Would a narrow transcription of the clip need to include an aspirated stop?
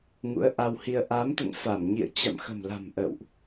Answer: no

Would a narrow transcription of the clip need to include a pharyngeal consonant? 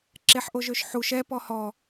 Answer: yes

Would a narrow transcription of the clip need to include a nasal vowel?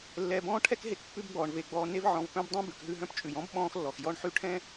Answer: yes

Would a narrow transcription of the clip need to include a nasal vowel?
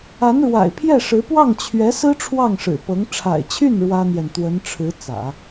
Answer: no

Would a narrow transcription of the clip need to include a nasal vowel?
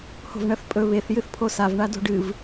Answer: no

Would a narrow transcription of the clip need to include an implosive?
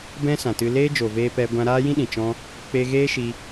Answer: yes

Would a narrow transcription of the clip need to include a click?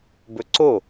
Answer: yes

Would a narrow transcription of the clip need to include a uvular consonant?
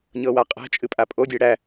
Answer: yes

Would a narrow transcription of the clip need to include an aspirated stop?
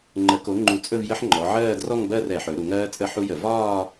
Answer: no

